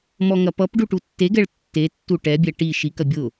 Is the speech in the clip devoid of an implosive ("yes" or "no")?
yes